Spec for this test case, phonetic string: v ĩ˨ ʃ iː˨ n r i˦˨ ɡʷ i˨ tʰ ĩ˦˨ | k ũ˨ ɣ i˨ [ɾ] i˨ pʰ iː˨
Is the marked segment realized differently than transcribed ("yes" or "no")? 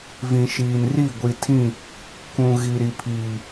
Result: no